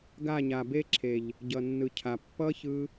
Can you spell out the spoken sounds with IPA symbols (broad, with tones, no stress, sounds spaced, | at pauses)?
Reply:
ɡ a˦˨ ɲ a˨ b e˦ ǁʰ e˨ ʎ | ɟ ʌ˨ nː ɯ˨ cʰ a˨ pː ʌ˦ ç ɯ˧